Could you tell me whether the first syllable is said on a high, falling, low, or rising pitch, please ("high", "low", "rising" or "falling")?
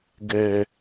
low